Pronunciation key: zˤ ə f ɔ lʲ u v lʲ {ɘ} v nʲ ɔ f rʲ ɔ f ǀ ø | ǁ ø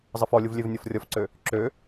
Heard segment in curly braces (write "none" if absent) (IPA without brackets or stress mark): ø